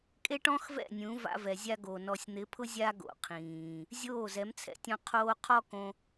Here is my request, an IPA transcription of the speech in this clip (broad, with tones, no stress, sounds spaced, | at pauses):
kʼ e˦ ʈ ɔ̃˦ x v ɛ̰˦˨ nʲ ũ˨˦ v a̰˧ v ɛ˨ zʲ a˦ ɡ o˨ n ɔ˨ sʲ n̪ ɪ˨˦ pʰ ʊ˦ zʲ a˦ ɡ o̰˨ qʰ ĩː˨ | zʲ oː˦˨ z ɛ˨˦ m t͡sʰ ɛ̰˦ tʲ ɔ̃˦ qʰ oː˧ qʰ ɔ˦ k õ˧